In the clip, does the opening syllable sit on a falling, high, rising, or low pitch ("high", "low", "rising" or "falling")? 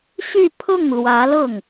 falling